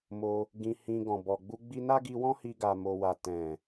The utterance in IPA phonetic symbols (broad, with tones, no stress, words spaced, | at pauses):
mo˧ | ɡĩ˧hĩ˧ɡɔ̃˨ bɔ˨ɡ͡bu˧ ɡ͡bi˧na˦ɡi˧wɔ̃˦ hi˧ɡa˨mo˨wa˨ tɛ̃˨